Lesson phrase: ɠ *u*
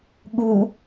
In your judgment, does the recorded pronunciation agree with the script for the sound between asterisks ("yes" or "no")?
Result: no